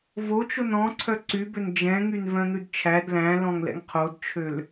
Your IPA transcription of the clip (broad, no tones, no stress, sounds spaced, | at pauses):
v o t͡ʃ o n ɔ̃ ǀʰ œ ǀ y b ø n d͡ʒ ɛ̃ ŋ y n v œ̃ n̪ ʉ d t͡ʃʰ æ d l æ̃ l ɔ̃ ŋ l ɛ̰ ŋ qʰ o d t͡ʃʰ ø l